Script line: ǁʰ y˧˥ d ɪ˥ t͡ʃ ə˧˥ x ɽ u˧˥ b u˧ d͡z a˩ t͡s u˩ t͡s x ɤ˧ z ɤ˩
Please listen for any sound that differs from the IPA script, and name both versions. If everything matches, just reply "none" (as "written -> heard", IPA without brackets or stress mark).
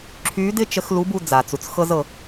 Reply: ɽ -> l